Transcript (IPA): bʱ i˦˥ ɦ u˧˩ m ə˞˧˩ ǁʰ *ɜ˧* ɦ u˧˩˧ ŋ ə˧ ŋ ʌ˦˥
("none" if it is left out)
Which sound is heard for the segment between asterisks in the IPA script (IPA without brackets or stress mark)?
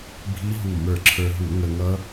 ə˞˧